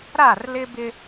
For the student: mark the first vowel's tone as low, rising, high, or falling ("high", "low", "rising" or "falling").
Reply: falling